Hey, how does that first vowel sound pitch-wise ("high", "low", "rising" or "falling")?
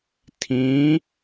rising